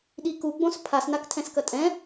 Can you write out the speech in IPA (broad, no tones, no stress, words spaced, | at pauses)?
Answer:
ɗiku ɡ͡bõspʰas naktʰɛ̃skɐtʼɛ̃